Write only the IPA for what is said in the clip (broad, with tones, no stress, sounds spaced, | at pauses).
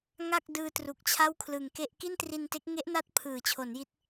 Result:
ŋ a˥˩ k̚ d ɯː˧ t r u˨˩ k̚ t͡ɕʰ a˥˩ w kʰ l ɯ˨˩ ŋ k e˥˩ ʔ k i˥˩ n t r i˧ n t e˦˥ k̚ ŋ e˦˥ ʔ n a˦˥ t̚ pʰ ɯː˩˦ t͡ɕʰ o˩˦ n j i˦˥ t̚